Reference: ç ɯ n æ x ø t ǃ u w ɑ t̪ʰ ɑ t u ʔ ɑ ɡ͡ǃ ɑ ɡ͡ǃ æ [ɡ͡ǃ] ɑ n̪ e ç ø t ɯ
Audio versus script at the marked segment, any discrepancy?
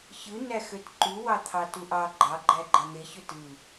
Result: no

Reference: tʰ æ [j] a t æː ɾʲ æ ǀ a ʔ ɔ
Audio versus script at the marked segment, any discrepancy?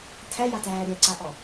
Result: no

